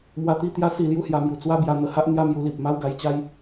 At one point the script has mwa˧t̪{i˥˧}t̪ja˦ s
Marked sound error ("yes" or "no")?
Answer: no